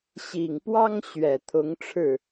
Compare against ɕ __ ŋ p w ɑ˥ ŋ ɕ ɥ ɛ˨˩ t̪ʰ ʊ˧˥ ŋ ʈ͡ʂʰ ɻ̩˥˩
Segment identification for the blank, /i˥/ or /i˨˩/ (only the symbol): i˨˩